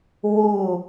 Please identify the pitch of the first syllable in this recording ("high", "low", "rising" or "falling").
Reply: falling